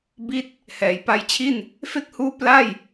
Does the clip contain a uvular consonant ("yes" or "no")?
no